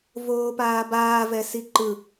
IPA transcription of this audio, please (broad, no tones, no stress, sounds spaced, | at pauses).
v oː p aː b aː v ɛ s i ǃ ɯ